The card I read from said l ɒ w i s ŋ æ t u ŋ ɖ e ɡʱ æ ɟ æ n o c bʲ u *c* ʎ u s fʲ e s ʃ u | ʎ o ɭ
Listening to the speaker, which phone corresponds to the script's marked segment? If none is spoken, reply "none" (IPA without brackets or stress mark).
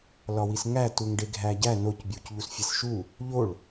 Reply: c